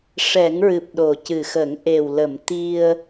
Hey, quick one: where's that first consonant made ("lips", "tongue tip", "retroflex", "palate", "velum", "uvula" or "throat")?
retroflex